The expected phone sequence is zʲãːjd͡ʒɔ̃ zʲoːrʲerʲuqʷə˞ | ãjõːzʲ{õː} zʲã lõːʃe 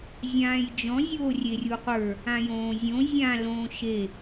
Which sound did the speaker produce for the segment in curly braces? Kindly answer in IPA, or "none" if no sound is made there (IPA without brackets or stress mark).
õ